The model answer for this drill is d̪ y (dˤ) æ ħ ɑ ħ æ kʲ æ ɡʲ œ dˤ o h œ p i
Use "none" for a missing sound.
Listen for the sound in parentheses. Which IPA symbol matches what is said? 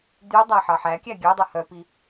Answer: dˤ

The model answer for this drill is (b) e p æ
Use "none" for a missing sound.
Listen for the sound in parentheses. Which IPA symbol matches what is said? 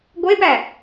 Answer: ɡʷ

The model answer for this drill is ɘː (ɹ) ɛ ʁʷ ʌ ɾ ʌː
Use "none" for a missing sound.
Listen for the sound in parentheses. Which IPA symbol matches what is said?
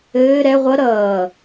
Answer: ɾ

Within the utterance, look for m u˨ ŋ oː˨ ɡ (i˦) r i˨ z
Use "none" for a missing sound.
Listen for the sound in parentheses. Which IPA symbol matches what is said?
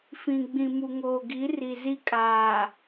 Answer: i˨˦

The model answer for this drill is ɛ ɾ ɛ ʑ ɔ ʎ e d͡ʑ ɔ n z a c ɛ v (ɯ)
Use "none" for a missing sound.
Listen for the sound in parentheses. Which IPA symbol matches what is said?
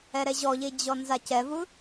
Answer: ɯ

